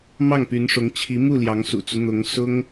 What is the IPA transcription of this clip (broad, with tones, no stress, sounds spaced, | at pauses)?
m ɑ˥˩ ŋ p y˧˥ n ʂ ʊ˧˥ ŋ t͡ɕʰ i˧˥ m u˥˩ l j ɑ˧˥ ŋ s ṵ˨˩ t͡s u˦ n̪ ʊ˧˥ ŋ s ʊ˥ ŋ